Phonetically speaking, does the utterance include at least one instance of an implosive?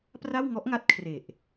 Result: no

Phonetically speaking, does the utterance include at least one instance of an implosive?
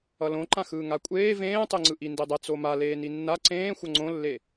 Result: no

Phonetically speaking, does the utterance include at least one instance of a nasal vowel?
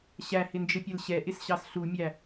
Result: no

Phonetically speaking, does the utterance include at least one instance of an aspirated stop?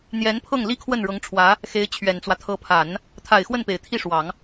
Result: yes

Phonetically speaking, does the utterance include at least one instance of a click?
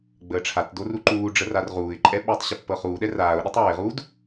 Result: yes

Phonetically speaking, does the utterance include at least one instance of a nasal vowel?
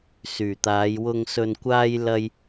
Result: no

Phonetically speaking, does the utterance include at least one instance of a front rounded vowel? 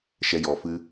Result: no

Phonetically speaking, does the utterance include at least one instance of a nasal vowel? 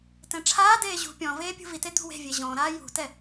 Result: yes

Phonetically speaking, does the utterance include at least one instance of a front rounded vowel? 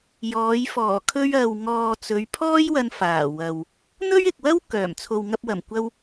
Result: yes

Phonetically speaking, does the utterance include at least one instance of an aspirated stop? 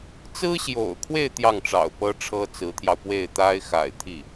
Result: yes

